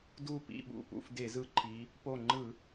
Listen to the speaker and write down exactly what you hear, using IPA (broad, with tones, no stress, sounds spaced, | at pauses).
d u˥˨ p ḭ˥˨ ɓ ṵ˧˩ p ṵ˥˨ f d e˧˩˧ z ɯ˧˩ ǃʰ i˩˧ | p o˧˩ ŋ͡ǃ ɯ˧˩˧